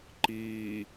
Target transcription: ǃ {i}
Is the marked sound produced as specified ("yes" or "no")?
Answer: no